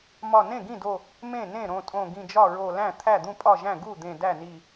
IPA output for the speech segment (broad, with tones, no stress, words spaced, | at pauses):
mɒ˧˩nẽ˥˩ɡĩ˥˩do˧˩ | mẽ˥˩ nẽ˥˩ɾõ˧˩tʼõ˧˩ ɡĩ˧˩d͡ʒɒ˥˩ɹo˧˩ læ̃˥˩ t̪ʰæ˥˩d̪ũ˥˩pʼɒ˥˩ʒæ̃˥˩ ɡu˥˩d̪ẽ˧˩ dæ˥˩ni˧˩